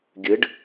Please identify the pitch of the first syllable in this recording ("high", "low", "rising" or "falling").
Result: rising